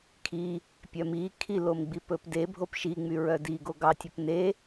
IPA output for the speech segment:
kʰ i | pʲ œ m i kʰ i l o m ɡ͡b i p ɵ p d e bʱ o p ʃ i ŋ͡m y ɹ œ d i ɡ o ɡ ɑ tʲ ɵ p n e

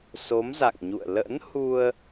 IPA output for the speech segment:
s o˨˦ m z a̰˧˨ ŋ ɲ ṵ˧˨ ə̯ l ə̰˧˥ n h u˧ ə̯

